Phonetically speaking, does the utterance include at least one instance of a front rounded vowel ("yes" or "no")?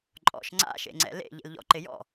no